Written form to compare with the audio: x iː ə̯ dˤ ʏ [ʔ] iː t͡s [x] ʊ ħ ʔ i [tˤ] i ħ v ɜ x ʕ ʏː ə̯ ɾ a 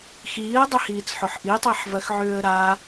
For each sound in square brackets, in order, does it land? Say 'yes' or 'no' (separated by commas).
no, no, yes